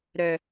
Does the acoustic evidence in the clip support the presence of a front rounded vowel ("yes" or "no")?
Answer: yes